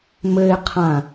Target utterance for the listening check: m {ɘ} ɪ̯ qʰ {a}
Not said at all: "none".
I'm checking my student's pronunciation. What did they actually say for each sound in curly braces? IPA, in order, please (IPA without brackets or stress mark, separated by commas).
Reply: ɘ, ã